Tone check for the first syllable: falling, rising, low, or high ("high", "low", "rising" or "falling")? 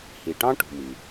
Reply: low